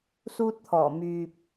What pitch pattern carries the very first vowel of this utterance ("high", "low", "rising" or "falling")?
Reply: high